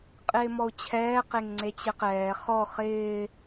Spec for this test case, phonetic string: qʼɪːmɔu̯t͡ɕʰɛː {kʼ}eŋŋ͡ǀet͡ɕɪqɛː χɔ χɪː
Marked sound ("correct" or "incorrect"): incorrect